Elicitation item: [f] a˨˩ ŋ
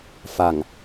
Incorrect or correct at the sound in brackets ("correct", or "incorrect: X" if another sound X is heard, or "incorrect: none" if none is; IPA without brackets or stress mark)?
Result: correct